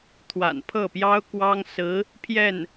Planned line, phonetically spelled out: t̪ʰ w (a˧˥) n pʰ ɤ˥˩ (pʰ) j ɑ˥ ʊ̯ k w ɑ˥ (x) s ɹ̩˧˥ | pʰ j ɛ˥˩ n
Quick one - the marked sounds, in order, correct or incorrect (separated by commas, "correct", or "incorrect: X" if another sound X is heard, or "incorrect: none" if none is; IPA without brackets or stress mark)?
incorrect: a̰˨˩, incorrect: p, incorrect: ŋ